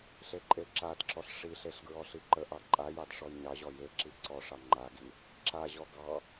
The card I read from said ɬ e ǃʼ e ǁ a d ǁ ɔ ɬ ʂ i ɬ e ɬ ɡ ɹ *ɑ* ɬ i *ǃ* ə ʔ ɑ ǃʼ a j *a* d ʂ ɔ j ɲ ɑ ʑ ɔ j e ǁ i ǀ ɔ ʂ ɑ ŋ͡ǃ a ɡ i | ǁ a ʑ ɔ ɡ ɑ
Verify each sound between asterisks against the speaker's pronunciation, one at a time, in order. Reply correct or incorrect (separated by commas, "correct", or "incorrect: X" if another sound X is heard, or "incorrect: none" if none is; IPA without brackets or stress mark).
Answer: incorrect: ɔ, correct, incorrect: ɑ